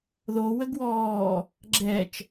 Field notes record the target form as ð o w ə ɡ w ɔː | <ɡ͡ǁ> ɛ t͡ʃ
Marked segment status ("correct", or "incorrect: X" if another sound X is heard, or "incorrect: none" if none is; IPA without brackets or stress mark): correct